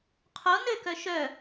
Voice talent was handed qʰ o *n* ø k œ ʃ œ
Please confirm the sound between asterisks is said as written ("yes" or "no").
yes